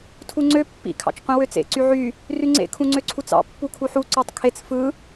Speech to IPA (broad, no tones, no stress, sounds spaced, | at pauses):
tʰ u ŋ͡ǀ ø pː ḭ kʰ ɑ̰ t͡ʃ qʷ ĩ w ø t͡s ḛ ǀ y ʕ y | r y ŋ͡ǀ ḛ kʰ ũ ŋ͡ǀ ø ǀʰ u t͡s ɑ̰ pː u kʰ u ħ u ǀ o tˤ kʰ e t͡s f ɯ